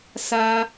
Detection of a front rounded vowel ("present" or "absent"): absent